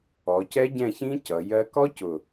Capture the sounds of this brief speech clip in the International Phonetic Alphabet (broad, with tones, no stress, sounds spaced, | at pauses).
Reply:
ɔ˩˧ c ɛ˦˥ ɟ ɛ̃˦˨ ç ĩ˦˥ c ʌ˩˧ j ɜ˦˥ k ɔ˦˥ c ʊ˨˩